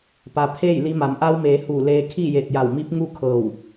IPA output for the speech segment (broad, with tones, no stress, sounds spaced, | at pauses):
p a˩ pʰ eː˥˨ j l i˧ m a˩˧ m ʔ a˧ w m eː˩˧ h u˧˩ l eː˧ kʰ i˥˨ j e˧˩ t̚ j a˧˩ w m i˧˥ p̚ ŋ u˥˨ kʰ ɤː˧˩ w